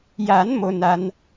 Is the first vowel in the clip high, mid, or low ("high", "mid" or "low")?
low